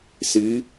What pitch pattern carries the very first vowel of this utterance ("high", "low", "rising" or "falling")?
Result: rising